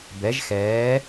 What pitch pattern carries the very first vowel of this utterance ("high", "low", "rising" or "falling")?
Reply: rising